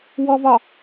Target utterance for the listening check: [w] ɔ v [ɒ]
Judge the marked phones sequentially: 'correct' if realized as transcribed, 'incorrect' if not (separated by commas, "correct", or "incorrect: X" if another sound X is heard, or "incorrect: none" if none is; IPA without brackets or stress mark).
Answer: correct, correct